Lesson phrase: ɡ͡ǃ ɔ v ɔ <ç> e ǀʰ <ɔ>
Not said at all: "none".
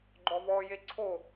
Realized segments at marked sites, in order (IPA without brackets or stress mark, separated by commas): j, o